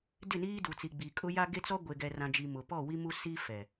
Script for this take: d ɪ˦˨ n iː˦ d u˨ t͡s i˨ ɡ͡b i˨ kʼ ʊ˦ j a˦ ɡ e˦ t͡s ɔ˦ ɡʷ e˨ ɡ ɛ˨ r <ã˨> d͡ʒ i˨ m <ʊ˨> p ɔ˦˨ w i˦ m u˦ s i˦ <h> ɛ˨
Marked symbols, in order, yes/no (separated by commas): yes, yes, no